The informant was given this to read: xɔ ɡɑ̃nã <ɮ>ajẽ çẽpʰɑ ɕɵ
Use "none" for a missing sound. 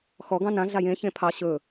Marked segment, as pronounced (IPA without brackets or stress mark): ɮ